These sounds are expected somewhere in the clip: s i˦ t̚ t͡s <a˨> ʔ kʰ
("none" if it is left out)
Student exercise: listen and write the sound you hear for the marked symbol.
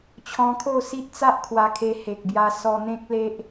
a˦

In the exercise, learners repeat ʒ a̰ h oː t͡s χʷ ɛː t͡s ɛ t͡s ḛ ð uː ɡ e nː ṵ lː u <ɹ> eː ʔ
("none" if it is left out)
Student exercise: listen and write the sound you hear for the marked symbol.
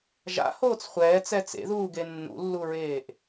ɹ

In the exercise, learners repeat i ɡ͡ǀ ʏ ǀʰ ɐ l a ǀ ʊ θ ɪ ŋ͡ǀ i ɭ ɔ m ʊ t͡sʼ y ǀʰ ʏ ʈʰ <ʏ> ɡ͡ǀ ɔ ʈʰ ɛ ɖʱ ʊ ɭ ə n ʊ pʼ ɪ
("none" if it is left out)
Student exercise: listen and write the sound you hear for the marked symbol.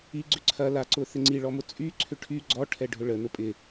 y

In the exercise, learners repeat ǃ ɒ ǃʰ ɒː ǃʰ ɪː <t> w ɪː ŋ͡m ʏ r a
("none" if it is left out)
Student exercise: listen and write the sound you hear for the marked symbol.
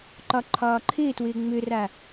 t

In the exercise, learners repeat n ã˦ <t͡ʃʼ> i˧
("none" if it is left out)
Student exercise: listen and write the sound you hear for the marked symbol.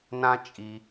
t͡ʃʼ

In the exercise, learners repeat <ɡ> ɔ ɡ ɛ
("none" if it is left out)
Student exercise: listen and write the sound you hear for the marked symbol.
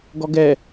ɡ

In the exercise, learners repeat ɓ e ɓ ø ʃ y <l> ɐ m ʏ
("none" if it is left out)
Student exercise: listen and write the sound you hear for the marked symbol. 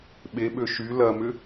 l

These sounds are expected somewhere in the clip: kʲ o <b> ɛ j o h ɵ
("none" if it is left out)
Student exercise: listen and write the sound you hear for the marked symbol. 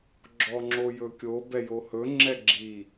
b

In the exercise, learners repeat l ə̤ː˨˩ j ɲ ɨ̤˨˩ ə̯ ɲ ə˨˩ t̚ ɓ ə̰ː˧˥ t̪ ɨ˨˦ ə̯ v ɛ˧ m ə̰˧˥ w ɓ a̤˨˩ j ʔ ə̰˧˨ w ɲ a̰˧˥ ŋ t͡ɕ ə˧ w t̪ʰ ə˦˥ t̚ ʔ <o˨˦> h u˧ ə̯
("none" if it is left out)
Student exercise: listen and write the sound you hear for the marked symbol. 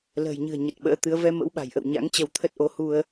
o˨˦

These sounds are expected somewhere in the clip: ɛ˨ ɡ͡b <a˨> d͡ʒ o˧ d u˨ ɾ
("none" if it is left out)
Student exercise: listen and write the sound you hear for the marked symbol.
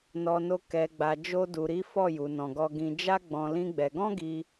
a˨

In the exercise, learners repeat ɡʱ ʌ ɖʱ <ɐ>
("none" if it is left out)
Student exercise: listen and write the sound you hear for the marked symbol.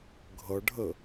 ə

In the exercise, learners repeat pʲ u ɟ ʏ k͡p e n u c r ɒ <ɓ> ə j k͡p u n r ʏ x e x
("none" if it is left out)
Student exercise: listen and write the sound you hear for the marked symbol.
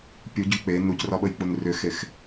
ɓ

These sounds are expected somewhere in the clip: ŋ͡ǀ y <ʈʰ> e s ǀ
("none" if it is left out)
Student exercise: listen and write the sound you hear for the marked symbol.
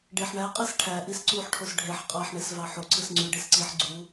ɖ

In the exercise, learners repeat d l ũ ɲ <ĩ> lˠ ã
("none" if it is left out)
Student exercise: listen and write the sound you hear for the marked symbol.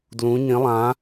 ĩ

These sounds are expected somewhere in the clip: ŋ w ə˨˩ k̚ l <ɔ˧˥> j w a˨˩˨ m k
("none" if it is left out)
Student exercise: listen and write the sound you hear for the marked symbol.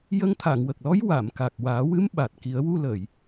ɔ˧˥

